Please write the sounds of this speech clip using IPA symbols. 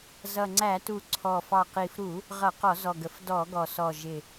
z ʌ˨˩ ŋ͡ǀ æ˧˩˧ t u˨˩ ǀʰ ɔ˨˩ f ɑ˨˩ q i˨˩ f ɾ u˧˩˧ | ʁ ʌ˧˩˧ q ɔ˧˩˧ z ɔ˨˩ ɡ ə˧˩˧ f d ɔ˧˩˧ ɡ ɔ˨˩ s ɔ˨˩ ʒ ɪ˨˩

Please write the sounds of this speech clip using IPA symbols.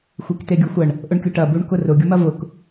xʷ i k t e ɡʲ u xʷ ɐ ɳ | ʔ ʊ ɳ kʲ ʊ ʈ ɐ b u ɳ k ʊ r ʊ ɡʲ ʊ m ɐ v ʊ k

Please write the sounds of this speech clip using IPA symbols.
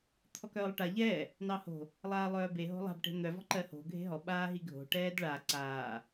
t̪ʰ ɔ k œː lˠ ʈ a ʎ ɛː | n ɑ h o̤ | lˠ aː lˠ œː b e ɦ o̤ lˠ a̤ b ʈ e̤ n̪ œ v ɔ̤ ǃ ɜ h o̤ ɡʱ e̤ ɦ ɔ ɓ aː ɦ i ɡʱ o̤ ʈ ɛː d ɭ a ǀ aː

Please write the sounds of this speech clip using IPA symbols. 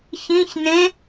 ç ĩ ç n ẽ

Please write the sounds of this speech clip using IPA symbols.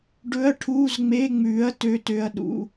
ɖ ɵ˧˥˧ ɐ̯ ʈʰ uː˧˥˧ z ŋ͡m e˧˥˧ ŋ͡m ʉː˨˥ ɐ̯ t ø˧˥˧ t ø˧˥˧ ɐ̯ ɗ ṵ˧˥˧

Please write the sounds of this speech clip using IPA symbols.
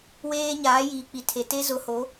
w eː˦ ɲ aː˨˦ j iː˨ k͡p i˨ tʰ e˨ t e˦ z ʊ˨˦ h o˨˦

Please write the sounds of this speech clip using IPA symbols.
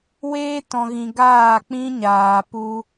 w eː˦ t ɔ̃˨ ɣ ĩ˨ ɡ aː˦˨ k͡p ĩ˦ ɲ aː˨ p u˧

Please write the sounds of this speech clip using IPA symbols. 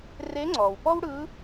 r e˧˥ ŋ͡ǀ ɔː˩ w p ɔ˥ w ɽ ɯ˧˥

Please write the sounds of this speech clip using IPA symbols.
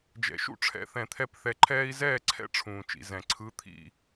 d͡ʒ ɛ̰˩ ʃ ṵ˥˩ ʈ͡ʂʰ ɛ̰˩˥ θ ɛ̃˩ t̪ʰ ɛ˥˩ p θ ɛ˧ ǃʰ ɛː˥ i̯ z ɛː˥˩ ǀʰ ɛ̰˥ ʈ͡ʂʰ ũː˩ t͡ʃ ḭ˩ z ɛ̃˩ ǀʰ ɯ˩˥ t̪ʰ ḭ˥˩

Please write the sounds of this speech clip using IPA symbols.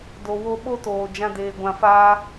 d o˨ w o˧ ɓ o˦ t oː˨ d͡ʒ ã˧ d eː˨ ɡʷ ã˨ f aː˧

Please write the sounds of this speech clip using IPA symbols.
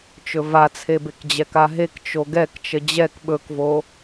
t͡ʃ ɵ v a t͡sʰ e b e k d͡ʑ ɛ k a ɦ e k t͡ʃ o ɡ ɛ k t͡ʃ ə d͡ʑ ɛ k ɓ ɵ k v o

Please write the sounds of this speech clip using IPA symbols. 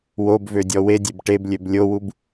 w o b v ø dʲ ɔ w e dʲ e b ʈ e b lʲ ø b lʲ o w u b

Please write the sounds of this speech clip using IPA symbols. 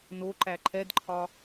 n o ǃ æ ǃʰ ɛ d ǃʰ ɒ

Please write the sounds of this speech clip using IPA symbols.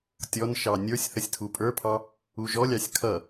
tʲ ɔ n ʃ ɑ nʲ ə˞ sʲ θ ə sʲ tʰ u pʼ ə˞ pʰ ɑ | u ʒ ɔ lʲ ɑ sʲ kʰ ʌ

